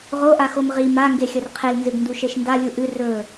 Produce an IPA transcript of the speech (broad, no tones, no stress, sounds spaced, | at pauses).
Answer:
ʁ o ʔ a x o m ʁ i m a ŋ ɡ e xʲ ɐ r qʰ e l n z ɨ ɡ n d u ʃ e ʃ n d a lʲ u ʔ ɨ r ɵ